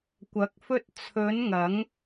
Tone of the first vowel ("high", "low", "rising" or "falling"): rising